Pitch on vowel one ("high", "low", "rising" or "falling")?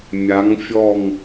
rising